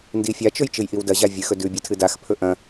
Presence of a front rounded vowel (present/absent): absent